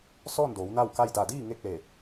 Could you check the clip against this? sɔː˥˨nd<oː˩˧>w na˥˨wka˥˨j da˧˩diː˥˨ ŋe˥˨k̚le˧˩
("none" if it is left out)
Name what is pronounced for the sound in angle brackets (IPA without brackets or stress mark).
oː˩˧